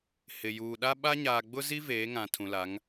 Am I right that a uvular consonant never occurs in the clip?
yes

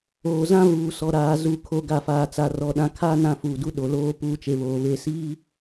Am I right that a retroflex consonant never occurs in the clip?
yes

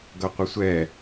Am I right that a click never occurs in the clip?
yes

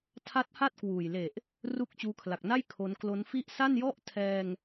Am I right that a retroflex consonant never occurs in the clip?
yes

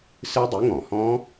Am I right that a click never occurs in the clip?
yes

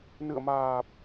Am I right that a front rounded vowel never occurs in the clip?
yes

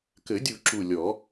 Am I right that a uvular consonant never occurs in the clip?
yes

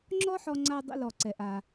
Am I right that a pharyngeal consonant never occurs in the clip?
no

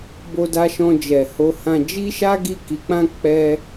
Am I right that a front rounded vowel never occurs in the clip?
yes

